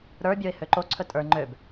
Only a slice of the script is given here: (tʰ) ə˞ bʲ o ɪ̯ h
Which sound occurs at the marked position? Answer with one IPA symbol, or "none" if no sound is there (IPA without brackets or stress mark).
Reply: ɾ